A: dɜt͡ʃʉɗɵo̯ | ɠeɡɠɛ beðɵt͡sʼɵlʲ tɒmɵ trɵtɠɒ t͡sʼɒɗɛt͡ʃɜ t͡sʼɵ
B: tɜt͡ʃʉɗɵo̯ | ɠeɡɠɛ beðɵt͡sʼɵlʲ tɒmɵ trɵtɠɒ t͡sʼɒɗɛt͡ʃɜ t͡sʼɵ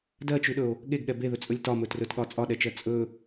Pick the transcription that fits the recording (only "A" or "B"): A